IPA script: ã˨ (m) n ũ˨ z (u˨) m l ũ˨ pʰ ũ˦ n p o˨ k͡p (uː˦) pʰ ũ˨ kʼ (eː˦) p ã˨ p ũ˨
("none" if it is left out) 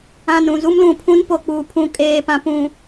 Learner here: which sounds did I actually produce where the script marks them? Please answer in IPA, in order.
none, u˦, uː˨, eː˨

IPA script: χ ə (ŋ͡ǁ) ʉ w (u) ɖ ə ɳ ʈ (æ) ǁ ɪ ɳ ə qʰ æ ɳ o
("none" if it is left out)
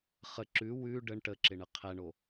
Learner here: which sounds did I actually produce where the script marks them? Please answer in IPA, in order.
ǁ, ʉ, ə

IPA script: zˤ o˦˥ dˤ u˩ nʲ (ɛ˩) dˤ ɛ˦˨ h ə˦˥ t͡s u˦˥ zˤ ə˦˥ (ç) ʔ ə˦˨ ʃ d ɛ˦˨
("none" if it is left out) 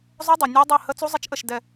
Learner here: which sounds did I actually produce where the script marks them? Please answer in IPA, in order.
ɛ˦˥, t͡ʃ

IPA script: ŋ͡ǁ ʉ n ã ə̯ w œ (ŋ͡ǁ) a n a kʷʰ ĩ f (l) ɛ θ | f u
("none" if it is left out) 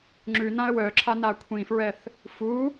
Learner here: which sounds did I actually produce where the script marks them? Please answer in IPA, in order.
ǁʰ, ɹ

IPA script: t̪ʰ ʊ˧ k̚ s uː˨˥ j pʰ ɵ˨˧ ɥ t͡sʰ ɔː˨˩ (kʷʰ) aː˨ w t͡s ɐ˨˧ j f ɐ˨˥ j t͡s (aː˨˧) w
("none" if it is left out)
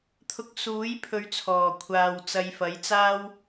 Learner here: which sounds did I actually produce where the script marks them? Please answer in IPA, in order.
kʷʰ, aː˥

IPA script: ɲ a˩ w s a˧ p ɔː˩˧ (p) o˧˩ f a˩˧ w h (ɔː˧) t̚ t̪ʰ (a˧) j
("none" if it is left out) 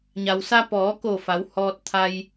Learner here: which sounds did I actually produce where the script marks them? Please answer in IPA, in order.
k, ɔː˧, a˧

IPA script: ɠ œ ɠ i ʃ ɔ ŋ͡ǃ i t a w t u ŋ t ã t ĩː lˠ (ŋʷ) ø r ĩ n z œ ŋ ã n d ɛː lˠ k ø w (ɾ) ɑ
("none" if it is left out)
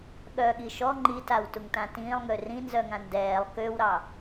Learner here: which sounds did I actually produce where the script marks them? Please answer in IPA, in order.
ŋ, ɾ

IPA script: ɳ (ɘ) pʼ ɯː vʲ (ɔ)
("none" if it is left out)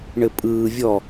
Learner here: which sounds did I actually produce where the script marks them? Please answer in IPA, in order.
ɘ, ɔ

